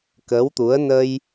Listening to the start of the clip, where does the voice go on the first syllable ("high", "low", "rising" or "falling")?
rising